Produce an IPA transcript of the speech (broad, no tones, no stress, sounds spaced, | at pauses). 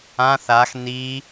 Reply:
ã θ a x n i